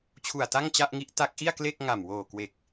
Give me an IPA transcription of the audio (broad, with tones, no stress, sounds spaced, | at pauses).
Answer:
t͡ɕʰ u˨˩ a̯ t a˥˩ ŋ t͡ɕ a˥˩ ʔ ŋ i˦˥ ʔ t a˦˥ k̚ ʔ i˥˩ a̯ k l e˥˩ k̚ ŋ a˨˩ m w oː˨˩ k w e˨˩ k̚